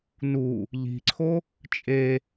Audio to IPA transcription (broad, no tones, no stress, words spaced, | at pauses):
nu | ʎi̤ǀʰo | t͡ʃʼe